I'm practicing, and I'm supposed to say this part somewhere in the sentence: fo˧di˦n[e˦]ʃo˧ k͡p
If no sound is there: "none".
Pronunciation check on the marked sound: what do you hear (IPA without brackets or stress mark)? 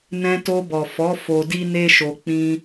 e˦